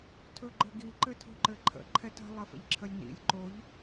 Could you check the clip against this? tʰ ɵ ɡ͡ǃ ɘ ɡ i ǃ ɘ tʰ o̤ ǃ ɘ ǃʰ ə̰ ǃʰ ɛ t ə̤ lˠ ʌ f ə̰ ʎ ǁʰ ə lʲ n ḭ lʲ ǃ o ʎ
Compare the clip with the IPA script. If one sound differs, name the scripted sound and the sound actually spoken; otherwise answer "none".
ʌ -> ə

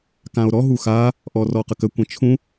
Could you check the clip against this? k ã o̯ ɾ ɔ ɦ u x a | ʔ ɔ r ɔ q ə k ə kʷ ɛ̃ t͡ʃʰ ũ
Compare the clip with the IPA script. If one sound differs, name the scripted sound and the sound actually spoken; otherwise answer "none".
none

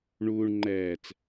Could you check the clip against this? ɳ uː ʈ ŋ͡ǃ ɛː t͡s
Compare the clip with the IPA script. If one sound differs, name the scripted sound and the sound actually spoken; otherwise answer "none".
ʈ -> ɳ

